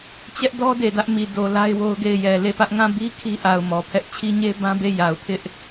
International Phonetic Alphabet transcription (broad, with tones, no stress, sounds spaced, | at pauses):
t͡ɕ ɛ˦ ʔ d ɔ˦ d e˨ d ä˦ ʔ m i˨ d o˨ l a˦ ɪ̯ w o˦ ʊ̯ ɡ e˦˨ ɪ̯ j ɛ˨ l e˦˨ p ä˦ ʔ ŋ ã˦˨ b i˦ kʰ i˦ ʔ a˨ ʊ̯ m ɔ˨ pʰ ɛ˦ ʔ t͡ɕʰ i˦ ɲ e˦ b ã˦ b e˦˨ j a˨ ʊ̯ pʰ ɪ˦ ʔ